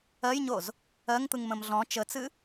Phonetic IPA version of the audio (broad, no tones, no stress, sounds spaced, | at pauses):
ɜ j ɲ o z | ɜ ŋ t̪ ɯ ŋ m ə̃ m ɮ ɔ̃ t͡ʃ ə t͡s ɨ